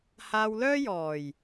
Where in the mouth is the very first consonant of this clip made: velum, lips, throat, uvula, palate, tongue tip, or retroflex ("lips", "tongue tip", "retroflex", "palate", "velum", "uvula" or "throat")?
throat